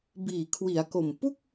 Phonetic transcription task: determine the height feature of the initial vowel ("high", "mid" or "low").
high